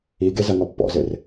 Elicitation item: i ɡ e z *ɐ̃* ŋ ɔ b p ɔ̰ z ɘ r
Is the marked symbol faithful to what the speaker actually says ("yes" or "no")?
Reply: no